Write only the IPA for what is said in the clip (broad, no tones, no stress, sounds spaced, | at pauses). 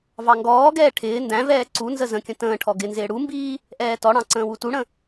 v ɑ ŋ ɡ ɔː ɡ ɛː ʈʰ ɪː n d æ̃ v ɛː ǀ u n z ə z ə̃ kʲ ə̃ t ə̃ː ʈʰ ɔ ɡ ɪ n z ɪː ɽ u m b iː | ʔ ɛː t ɔ ɽ ɑ̃ ǀ ə̃ː w u t u ɽ ə̃